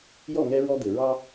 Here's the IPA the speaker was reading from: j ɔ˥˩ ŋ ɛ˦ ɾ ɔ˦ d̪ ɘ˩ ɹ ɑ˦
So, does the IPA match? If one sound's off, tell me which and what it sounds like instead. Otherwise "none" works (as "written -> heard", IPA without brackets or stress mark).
ɾ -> ɹ